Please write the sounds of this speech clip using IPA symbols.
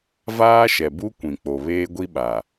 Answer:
vaː˦ʃɛ˨bu˦ kʷĩ˨k͡po˨βeː˦ ɡʷi˦ɓa˨

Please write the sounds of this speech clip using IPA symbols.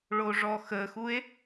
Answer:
ɭoʐɔxəxue̯

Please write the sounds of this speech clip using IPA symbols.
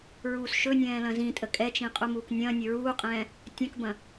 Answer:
ɹuːsʃɵnʲɛ̃ː lɐ̃zĩtʼə kʼɛt͡ʃĩ qʼumuːknʲɐ̃ːnʲɵ ɹuːqʼɛ̃ː | tʲɐ̃kbɐ̃

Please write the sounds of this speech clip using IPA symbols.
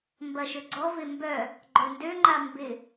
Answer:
mbɐʃøɡ͡ǀɔvɪ mbœ | ɡ͡ǃœndø ŋ͡ǃambɪ

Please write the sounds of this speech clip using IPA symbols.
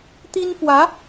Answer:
t̪i˥nfwä˧˥

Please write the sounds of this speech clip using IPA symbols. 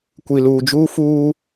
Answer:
kʷi˨luː˨d͡ʒuː˦fuː˦

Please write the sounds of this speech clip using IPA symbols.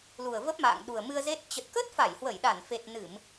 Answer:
lu˨˩ə̯və˦˥p̚ma̰ː˧˨ŋɗu˨˩ə̯ mɨ˧ə̯ze˦˥t̚ t͡ɕə˨˩t̚kə˦˥t̚fa˧˩j hwə˧˩jɗa˧˩nfe˨˩t̚ nɨ˧˩˨m

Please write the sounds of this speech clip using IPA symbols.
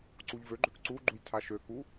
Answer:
ǀuʎvøɡ͡ǃøk ǀuɡ͡ǃuj tʰaʃøku

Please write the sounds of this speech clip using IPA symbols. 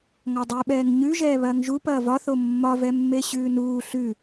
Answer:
ŋɒdˤʉɓɛːŋ ɲʉ ʒɛːβɐːŋʒu pɐːvɒθo mːɒvɛmːe ɕʉːnuː ɬʉ

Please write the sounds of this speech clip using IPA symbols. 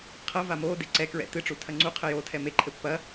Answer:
qʰɐ vamoː deǀɛkɹɛ̰ tɨʈ͡ʂu tʰɐŋ͡ǀu qʰɘjoːtʰɛme ǃʰɘpːɐ

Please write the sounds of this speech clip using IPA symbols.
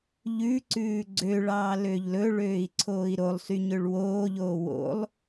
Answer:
ʎʉǀʉː ɡ͡ǀøɭɑː løʎlɵɭøːi̯ ǀʰoːi̯ɾolˠsy ɲøɭwoːʎoː wo̰lˠ

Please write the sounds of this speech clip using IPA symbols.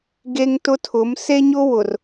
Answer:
ɡe˦ŋtʊ˦tʰʊ˨˦m se˦ɲʊ˦wʊ˨r

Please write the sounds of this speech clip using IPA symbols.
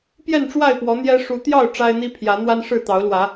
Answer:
pjɛ˥˨nʈ͡ʂwa˥˨ɪ̯pwɔ˨˦ n̪jɛ˦ ʂu˨˦t̪jɑ˥˨ʊ̯ ʈ͡ʂa˦ɪ̯n̪i˦pʰjä˨˦n̪wa˦n ʂɻ̩˥˨t̪ɑ˨˦ʊ̯lwä˨˦

